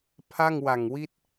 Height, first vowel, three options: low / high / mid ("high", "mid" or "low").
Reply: low